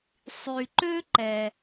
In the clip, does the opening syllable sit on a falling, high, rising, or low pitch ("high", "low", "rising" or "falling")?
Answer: low